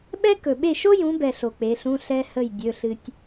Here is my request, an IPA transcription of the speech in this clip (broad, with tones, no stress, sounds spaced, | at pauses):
ɓ ɛ˥ k ɵ˨ ɓ e˥˨ ʃ o˥ j ũ˨˦ b ɛ˨ ɬ o˨ k͡p e˨˦ ɬ ũ˧˥˧ ɬ ɛ˥ h ə˥˨ j dʲ ɵ˧˥˧ ɬ ɨ˥ tʲ